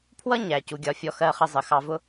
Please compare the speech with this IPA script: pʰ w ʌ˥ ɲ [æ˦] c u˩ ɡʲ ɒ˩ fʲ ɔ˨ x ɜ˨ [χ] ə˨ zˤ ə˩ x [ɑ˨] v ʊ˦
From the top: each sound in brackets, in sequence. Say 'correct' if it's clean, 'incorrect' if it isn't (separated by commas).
incorrect, correct, correct